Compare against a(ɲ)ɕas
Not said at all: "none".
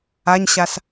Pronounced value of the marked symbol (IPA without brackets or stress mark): ɲ